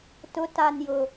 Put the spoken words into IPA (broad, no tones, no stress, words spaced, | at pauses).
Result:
tʊtanjʊ